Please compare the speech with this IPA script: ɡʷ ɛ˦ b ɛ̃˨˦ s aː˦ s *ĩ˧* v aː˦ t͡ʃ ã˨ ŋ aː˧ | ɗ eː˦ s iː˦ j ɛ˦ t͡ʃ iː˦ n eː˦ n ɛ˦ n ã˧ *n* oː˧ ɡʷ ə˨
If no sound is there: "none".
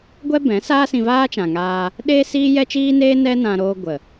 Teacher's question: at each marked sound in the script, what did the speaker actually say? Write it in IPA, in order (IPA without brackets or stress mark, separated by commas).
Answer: ĩ˧, ɾ